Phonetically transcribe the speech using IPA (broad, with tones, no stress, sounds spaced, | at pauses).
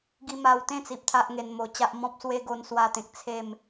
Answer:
ɡ i˧ m a˧ w t̪ ẽ˥˧ t͡s i˨ p̚ t̪ʰ a˦ ʔ ŋ e˧ n m o˧ t͡ɕ a˦ ʔ m ɔ̃˦ p̚ s w e˦ ɡ o˧ n s w a˦ t̪ ẽ˨ k̚ t͡sʰ e˥˧ m